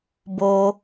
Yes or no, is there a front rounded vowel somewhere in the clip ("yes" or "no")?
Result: no